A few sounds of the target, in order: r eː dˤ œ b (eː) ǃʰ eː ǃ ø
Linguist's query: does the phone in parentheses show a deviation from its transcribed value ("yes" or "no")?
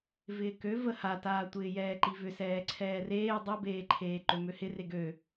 no